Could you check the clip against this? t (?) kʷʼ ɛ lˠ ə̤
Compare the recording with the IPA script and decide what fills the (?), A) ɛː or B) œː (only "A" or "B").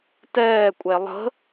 A